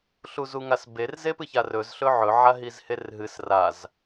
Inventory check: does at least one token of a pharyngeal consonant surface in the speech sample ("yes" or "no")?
yes